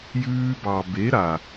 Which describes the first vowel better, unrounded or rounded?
rounded